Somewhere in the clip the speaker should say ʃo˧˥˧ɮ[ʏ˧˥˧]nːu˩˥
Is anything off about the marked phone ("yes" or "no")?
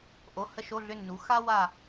no